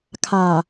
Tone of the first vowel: low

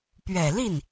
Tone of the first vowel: low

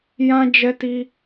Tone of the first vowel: high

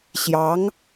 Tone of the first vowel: rising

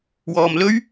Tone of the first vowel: low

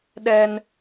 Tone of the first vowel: high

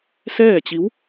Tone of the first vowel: falling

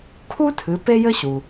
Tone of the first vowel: high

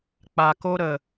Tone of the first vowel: low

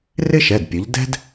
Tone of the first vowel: high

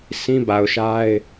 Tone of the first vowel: high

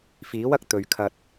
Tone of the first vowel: rising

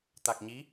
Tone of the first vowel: low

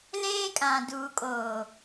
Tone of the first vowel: high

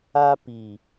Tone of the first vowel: high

